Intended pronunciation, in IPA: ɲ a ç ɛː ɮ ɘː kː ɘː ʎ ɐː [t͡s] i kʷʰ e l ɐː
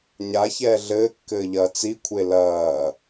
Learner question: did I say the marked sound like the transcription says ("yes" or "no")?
yes